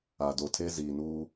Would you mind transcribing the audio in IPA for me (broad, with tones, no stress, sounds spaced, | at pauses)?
a˨ d o˨ tʰ e˦ z iː˨ n uː˦